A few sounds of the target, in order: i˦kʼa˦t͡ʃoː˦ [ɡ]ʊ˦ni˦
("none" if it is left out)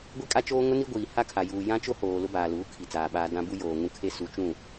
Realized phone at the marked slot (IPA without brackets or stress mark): ŋ